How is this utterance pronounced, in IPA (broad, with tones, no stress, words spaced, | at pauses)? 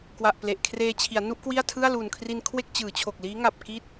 kwa˨˩ʔ ple˨˩ʔkʰreː˧t͡ɕʰi˩˦a̯ nu˦˥ʔkwi˥˩a̯tʰɯ˥˩a̯ luː˨˩nkʰri˧n kʰwe˥˩k̚t͡ɕɯː˩˦t͡ɕʰo˨˩k̚liː˦˥ ŋa˨˩p̚ki˦˥t̚